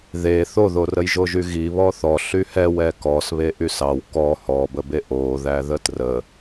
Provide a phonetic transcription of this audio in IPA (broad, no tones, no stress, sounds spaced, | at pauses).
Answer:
ð e θ o ð o r ə j ʒ o ʒ y ɣ i β ɔ θ ɔ ɬ y h ɛ w ɛ k ɔ s β e ʔ y s ɑ w k ɔ h ɔ b ə b e ʔ o ð æ ð ə t r ə